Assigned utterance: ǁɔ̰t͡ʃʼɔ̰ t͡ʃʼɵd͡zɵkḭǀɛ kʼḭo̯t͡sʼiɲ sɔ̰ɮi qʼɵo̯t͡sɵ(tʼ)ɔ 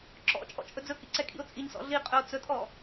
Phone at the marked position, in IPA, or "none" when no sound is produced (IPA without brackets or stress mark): tʼ